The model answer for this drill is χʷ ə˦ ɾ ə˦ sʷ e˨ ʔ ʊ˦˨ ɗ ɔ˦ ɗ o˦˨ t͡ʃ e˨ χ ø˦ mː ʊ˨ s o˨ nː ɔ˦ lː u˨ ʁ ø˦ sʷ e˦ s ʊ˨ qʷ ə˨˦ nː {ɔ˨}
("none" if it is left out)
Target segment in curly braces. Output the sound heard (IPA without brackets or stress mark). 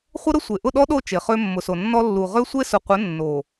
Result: o˨